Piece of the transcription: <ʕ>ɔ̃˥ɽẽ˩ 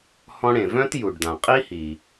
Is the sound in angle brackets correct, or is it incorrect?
incorrect: h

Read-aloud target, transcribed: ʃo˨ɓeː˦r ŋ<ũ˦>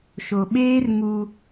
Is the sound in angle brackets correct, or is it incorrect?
incorrect: u˦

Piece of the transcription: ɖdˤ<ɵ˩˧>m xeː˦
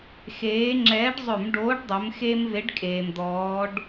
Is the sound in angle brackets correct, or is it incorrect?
correct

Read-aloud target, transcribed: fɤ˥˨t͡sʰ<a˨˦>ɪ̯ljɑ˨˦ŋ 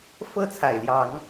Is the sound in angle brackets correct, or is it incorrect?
incorrect: a˨˩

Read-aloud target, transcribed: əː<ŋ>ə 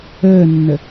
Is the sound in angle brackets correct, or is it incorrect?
incorrect: nː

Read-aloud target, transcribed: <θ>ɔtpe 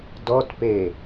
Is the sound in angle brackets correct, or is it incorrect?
incorrect: d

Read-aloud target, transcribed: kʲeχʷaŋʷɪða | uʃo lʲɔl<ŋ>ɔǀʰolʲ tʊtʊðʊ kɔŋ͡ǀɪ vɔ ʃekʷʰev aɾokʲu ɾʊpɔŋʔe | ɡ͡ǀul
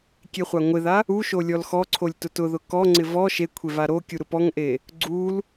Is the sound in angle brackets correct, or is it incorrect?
incorrect: x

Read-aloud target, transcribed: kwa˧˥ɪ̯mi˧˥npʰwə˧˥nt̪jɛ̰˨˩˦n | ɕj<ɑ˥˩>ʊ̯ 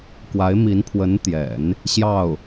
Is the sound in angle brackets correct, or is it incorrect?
correct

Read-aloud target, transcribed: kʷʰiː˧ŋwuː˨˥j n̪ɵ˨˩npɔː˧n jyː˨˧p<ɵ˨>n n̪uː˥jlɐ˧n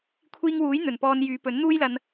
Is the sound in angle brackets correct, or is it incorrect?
incorrect: ɵ˨˥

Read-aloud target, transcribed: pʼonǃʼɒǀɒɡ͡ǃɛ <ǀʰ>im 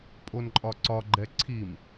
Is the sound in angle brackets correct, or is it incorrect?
correct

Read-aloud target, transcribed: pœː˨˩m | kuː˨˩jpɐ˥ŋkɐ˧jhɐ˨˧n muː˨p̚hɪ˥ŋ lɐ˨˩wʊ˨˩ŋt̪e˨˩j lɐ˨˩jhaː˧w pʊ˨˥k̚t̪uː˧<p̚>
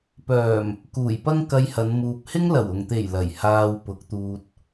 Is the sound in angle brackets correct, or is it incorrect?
incorrect: t̚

